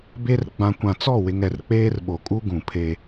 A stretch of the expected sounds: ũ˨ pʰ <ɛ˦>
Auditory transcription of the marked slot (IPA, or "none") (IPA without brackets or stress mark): e˦